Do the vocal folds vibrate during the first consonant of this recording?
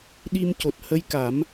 yes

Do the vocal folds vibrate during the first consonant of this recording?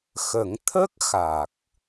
no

